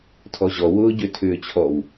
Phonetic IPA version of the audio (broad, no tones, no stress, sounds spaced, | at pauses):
tʰ ɔ ʑ ɔ w ʊː ɟ ø tʰ ʏː t͡ɕʰ ɔ w